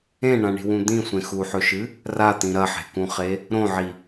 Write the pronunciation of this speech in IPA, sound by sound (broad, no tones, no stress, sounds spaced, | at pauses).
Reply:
ẽ ɳ ã ɳ i̤ w ũ d̪ ĩ sʷ ẽ x u ħ ɵ ʃ ɨ | r a t̪ ĩ ɾ ɐ ħ e̤ k ũ χ e | ɾ õ ʕ i